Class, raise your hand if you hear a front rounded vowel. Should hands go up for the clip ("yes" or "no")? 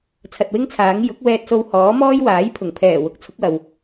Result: no